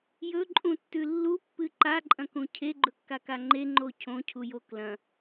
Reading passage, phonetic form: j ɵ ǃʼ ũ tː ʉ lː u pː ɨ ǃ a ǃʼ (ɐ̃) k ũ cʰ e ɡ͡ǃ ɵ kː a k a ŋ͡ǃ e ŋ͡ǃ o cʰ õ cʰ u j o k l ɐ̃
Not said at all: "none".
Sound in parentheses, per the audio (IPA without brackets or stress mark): ɐ̃